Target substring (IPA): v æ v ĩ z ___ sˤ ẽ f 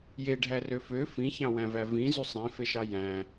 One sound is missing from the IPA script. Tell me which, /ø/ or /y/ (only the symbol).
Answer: y